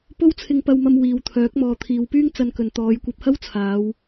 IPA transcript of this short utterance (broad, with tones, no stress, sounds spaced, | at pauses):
p o˥ w t͡sʰ ɪ˧ ŋ p ɐ˧ w m ɐ˧ m w iː˨ w t̪ʰ œː˨˥ k̚ m ɔː˨ t̪ʰ iː˨˧ w p yː˥ ŋ t͡s ɐ˧ n k ɵ˨ n t̪ ɔː˨˧ j kʷ ɐ˧ p̚ h ɐ˥ w t͡sʰ aː˨˧ w